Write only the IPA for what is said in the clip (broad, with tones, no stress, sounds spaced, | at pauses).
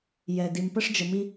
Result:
j ɛ˧ d i˧ m p ə˥ ʂ d͡ʒ ə˧ m i˥